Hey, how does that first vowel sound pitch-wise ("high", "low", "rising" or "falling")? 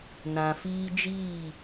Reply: low